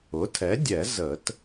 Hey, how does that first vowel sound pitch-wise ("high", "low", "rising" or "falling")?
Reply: rising